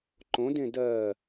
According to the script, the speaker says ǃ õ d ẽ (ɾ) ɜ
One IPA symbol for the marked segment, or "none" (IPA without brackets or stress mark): d